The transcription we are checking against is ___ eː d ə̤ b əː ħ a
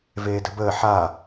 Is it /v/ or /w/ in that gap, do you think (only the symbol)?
v